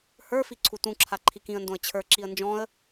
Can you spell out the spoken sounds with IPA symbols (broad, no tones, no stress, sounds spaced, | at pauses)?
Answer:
h ə˞ f i ǀʰ u t ũ ǁʰ a ǃʰ i k ĩ ə̯ n d õ ə̯ t͡ɕʰ ə˞ ǁ i ə̯ n d͡ʒ ɔ̃ ə̯